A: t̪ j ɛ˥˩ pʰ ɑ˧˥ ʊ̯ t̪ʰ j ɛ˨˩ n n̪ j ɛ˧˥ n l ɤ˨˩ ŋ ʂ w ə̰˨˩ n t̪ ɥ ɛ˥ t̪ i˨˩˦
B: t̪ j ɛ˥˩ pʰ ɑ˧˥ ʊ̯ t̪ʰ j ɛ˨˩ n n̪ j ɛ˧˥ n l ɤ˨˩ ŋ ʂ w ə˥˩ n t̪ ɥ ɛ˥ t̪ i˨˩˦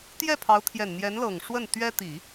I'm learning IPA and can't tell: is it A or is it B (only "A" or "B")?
B